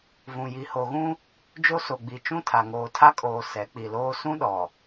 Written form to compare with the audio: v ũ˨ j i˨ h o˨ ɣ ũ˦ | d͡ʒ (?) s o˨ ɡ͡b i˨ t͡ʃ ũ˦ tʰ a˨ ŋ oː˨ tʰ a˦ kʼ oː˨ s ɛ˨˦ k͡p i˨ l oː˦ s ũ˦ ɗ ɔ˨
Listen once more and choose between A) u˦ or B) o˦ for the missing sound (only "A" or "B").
B